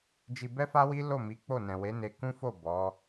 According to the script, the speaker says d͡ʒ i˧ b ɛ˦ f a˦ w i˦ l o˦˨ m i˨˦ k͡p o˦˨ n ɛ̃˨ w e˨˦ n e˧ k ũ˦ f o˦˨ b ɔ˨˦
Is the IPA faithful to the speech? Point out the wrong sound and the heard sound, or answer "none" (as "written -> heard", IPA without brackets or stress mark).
none